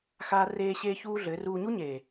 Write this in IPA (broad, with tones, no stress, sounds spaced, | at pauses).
x aː˧ r eː˧ ɕ eː˦ ç uː˦ ɮ ɘː˨˦ r uː˧ ɲ u˦ ɲ eː˨